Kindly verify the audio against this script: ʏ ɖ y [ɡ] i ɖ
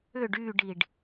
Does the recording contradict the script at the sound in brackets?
yes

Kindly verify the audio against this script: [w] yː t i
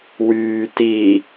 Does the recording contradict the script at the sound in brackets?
no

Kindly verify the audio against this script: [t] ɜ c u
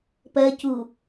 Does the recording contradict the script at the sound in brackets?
yes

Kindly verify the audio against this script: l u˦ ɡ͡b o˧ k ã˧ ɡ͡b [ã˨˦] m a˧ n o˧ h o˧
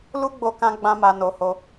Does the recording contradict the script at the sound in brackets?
yes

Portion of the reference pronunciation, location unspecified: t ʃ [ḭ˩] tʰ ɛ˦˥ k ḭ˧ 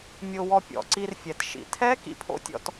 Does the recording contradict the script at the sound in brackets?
no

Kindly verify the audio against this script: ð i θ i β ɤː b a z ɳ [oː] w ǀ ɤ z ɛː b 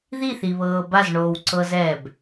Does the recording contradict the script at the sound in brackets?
no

